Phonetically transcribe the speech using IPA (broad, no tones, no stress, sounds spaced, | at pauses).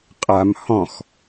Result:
qʼ a m h ɔ̃ x